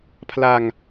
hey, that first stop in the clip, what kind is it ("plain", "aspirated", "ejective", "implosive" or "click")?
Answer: aspirated